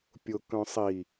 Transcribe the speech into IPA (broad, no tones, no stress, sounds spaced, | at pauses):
pʲ ʊ k œ̃ sˤ i